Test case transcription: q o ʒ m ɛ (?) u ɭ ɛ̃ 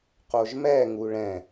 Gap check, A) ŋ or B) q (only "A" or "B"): A